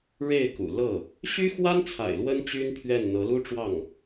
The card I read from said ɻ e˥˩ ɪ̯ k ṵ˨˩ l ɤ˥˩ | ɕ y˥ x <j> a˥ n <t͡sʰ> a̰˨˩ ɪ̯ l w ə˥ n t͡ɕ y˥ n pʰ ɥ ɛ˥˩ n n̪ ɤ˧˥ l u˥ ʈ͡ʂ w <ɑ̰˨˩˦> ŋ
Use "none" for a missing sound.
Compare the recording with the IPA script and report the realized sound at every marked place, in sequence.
w, t͡sʰ, ɑ˥˩

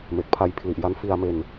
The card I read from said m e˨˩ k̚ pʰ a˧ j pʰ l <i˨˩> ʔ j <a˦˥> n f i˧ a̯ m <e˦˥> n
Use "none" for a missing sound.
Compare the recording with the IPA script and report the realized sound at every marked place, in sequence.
i˨˩, a˦˥, e˧

